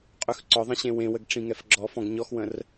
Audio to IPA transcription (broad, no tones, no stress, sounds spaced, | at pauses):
qʼ ʉ x ǀ ɔ ðˤ ə̃ ɕ ẽ w ẽ w ə ɡ ʈ͡ʂ ĩ ŋ ɛ f ɡ͡ǁ ɔ f ɔ̃ ɡ ɲ ɔ x w ə̃ r